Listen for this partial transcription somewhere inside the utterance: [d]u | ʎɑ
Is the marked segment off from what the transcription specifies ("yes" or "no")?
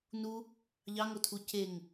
yes